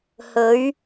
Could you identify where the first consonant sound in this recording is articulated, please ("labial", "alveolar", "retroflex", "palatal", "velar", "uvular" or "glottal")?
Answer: glottal